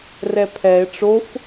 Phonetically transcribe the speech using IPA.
r ɛ pʰ ɛ e̯ ʈ͡ʂ o f

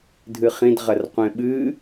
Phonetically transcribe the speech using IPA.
dʱ ɨ χ ĩ d ʁ ɐ r qʷ ẽ ɓ ɨ

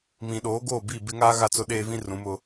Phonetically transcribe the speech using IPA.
m ĩ˨ ɗ oː˨˦ ɡ oː˦˨ b i˦˨ b ɪ˦ ŋ aː˦ ɣ a˦˨ t͡s ʊ˦ ɗ eː˦ v ĩ˦ r ũ˨˦ m ʊ˦

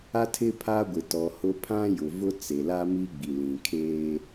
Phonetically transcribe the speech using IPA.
a˦ tʰ ɪ˦ pʰ a˦ ɡʷ ɪ˨ t ɔ˨ h ʊ˦ pʰ ã˦ j ʊ˨ v ʊ˦ t͡s e˨ l a˦ m i˦ ɡ͡b i˨ l ĩ˨ kʰ eː˦

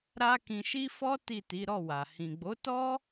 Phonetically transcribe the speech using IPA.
ɾ a˦ k ĩ˧ ʃ i˦ f ɔ˦ t i˦˨ t i˨˦ ɾ ɔ˦˨ w a˨ h ĩ˨ ɡ͡b o˨˦ t ɔ˦

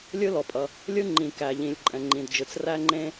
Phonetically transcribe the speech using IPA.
lʲ ɯ˥ l ɔ˩ pʼ ʌ˩ | lʲ ɯ˥ ŋ͡ǃ ĩ˩ k æ˩ ʎ ĩ˩ lʲ ǃʼ ɛ̃˩ ŋ͡ǃ ĩ˩ d d͡ʒ ɯ˩ t͡s r æ˥ ŋ͡ǃ ẽ˥

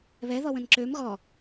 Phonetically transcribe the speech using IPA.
β ɛ ð ɔ w ə̃ n ǁ ø m ɣ ɔ

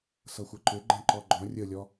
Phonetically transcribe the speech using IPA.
s ʌ xʷ ʌ ǃ ʏ ɡ͡ǃ ɛ̃ ǃ ɔ ɡ͡ǃ ɔ̃ rʲ ə lʲ ɔ

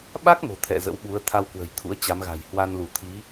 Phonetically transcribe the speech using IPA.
ɓ a˦˥ k̚ m o̤˨˩ t̪ʰ ɛ̰˧˨ z ə̰˧˥ w ɓ u˨˦ ə̯ t̪ʰ a˧ w k w ə̤˨˩ j t̪ʰ ṵ˧˥ ə̯ t͡ɕ a˨˦ m ɣ a̤˨˩ j h w a˧ n l u˧˩ t̪ʰ i˨˦

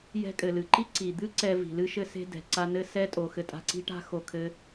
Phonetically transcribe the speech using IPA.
j ɛ̤˧ kʼ ɘ˩ l ɨ˩ ǃ i˥ ǀ i˩ d̪ ɨ˥ ǀ ɛ˧ v i̤˩ l ɨ˥ ʃ ɘ˥ s e̤˥ d ɛ̤˩ ǀ a˧ n ɘ˥ s ɛ˥ tʼ o˩ x ɘ˧ tʼ a̤˧ ǀ i̤˥ ʈ a̤˥ x o˧ kʰ ɘ˥

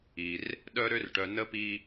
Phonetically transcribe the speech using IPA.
i˩ r | ɗ œ˦ ɾ ø˦ r ʈ œ˨ n ə˥ p i˦

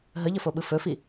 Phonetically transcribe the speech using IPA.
ɦ ə ʎ ə f o ɓ ɯ f ɵ f i

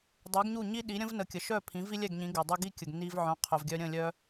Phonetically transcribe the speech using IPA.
dˤ u˩˥ ɡ ɲ u˥˩ ɲ i˥ ɗ i˩˥ ɾʲ ə̃˥ v n ə˩˥ kʲ ə˩ ʃ œ˥˩ pʰ ĩ˩˥ v i˥ lʲ ɛ˥˩ ɡ ɲ ĩ˩˥ ɡ ɛ˩ dˤ u˧ ɡ i˥ kʲ ə˩ ɡ n i˧ v ʕ œ̃˩˥ qʰ œ˩ v ɡʲ œ˧ ɾʲ ə̃˥˩ lʲ œ˧

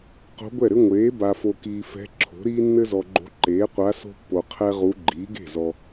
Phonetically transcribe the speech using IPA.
q o̤˧˥ ɡʷ ɛ˥˩ ɾ ɘ˥ ŋʷ eː˩˥ b a˨ f o˨ k iː˨ f ɛ̤˧˥ ǁʰ o̤˩˥ ɾ iː˥ nː ɘ˥ z ɔ˨ ɡ͡ǃ o̤˧˥ ǃ eː˩˥ qʷ a˧˥ s o̤˥ pː o˨ qʰ ɛ˥ ʁ u˧˥ ɡ͡ǃ iː˩˥ ɡ e̤˥˩ z ɔ˨

